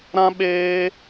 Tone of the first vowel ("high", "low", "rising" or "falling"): high